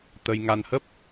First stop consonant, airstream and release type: plain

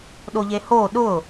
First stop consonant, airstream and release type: implosive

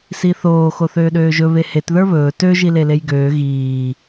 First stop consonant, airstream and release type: implosive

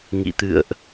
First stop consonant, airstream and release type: plain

